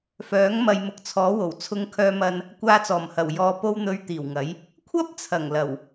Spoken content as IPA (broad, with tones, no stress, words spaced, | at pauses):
fœː˨˥ŋ mɐ˨jmʊ˨k̚ t͡sʰɔː˨˥wo˨˩wt͡sʰʊ˧ŋ kʰœː˧mɐ˧n | kʷaː˧t͡sɔː˨˩mhɐ˨˩w jɔː˨po˧w n̪ɵ˨˧ɥ t̪iː˨˩wŋɐ˨˥j | kʷʰɐ˥p̚t͡sʰɐ˨˩ŋ lɐ˨˩w